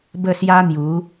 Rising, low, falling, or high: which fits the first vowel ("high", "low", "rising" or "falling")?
falling